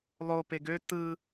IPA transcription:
lˠ o p e ɡ ø t ɯ

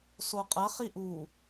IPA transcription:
s o qʼ ɐ χ i ʔ u

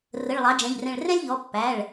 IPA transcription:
r ə˩˧˩ ɭ lˠ ɑ˩˥ d͡ʒ ɛ̃˩˧˩ ʎ r ɛ̃˧˩ ɭ r ɛ̃˥ lʲ ʎ ɔ˩˥ pː æ˩˧˩ ɭ

